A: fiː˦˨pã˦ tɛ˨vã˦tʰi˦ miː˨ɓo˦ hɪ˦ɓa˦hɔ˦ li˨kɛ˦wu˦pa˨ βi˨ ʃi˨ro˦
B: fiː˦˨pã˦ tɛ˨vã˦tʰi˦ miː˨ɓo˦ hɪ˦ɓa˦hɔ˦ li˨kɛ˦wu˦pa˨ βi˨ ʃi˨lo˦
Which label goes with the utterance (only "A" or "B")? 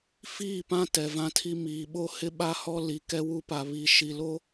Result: B